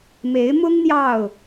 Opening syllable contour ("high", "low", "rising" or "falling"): rising